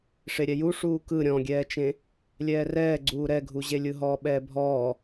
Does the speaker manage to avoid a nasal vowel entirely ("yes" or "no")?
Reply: no